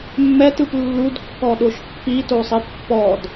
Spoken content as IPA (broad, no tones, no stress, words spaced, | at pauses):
mːɛtɯp lːudkːɔɗoʃ pːitosˤi pːɔd